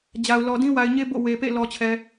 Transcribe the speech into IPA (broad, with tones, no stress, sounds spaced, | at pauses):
d͡ʑ a˨ ʊ̯ l ɔ˨ d ĩ˦ w a˨ ɪ̯ ɲ e˦ b o̰˦˨ w e˨ p ḛ˦˨ l ɔ˨ t͡ɕʰ ɛ˨